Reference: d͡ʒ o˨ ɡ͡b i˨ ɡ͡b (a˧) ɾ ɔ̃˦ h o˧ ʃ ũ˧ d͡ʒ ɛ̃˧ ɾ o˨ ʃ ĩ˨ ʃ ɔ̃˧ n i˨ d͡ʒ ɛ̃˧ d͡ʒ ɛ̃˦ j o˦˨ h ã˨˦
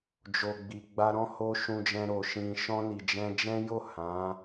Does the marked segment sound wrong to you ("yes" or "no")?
no